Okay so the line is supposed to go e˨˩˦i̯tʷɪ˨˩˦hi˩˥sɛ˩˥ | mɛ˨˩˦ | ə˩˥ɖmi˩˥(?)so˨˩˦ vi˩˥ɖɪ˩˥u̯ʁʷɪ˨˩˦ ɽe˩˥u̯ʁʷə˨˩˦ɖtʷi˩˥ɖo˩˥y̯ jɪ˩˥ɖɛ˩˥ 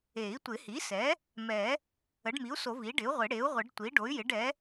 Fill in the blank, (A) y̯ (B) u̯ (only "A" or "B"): B